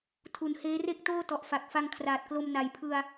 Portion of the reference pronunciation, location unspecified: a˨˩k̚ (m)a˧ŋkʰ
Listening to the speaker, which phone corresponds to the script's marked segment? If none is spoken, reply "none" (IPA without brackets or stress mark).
f